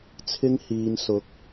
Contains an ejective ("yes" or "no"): no